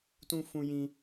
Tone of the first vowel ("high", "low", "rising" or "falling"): high